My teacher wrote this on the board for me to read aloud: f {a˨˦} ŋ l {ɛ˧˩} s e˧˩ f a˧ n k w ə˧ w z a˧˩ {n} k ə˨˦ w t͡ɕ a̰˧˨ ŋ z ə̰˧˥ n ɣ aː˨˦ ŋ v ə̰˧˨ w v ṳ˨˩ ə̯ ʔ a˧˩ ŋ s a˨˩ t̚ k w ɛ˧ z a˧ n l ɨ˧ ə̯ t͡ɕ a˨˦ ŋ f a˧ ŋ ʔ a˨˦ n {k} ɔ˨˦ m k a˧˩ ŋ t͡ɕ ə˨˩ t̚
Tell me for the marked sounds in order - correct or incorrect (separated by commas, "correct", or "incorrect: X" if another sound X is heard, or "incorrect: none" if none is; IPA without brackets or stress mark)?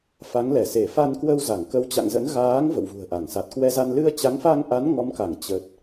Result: correct, correct, incorrect: ŋ, incorrect: ŋ